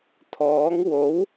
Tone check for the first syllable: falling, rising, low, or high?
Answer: rising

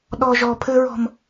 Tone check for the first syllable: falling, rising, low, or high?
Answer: high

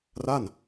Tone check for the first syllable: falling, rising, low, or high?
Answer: falling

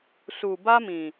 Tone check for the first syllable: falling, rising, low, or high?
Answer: low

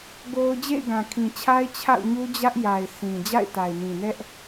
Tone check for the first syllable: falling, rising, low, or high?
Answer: high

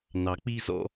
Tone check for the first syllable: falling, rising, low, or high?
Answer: low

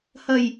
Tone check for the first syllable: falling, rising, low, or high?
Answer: low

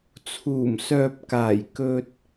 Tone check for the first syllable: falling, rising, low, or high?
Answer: low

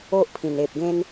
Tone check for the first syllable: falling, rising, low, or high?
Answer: high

